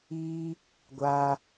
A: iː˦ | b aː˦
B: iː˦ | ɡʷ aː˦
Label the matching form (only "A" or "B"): B